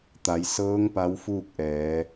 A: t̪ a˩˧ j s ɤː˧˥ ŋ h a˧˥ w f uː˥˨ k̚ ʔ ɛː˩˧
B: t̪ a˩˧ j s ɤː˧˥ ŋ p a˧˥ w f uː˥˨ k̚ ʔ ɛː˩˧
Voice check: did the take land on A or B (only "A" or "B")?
B